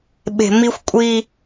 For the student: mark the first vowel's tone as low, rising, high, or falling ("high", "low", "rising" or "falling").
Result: low